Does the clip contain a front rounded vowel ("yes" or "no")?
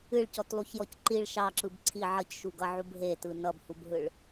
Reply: no